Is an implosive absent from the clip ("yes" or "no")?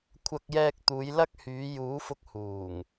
yes